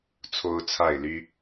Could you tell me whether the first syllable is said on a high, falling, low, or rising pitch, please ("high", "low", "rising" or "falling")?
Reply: high